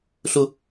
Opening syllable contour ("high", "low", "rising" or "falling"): high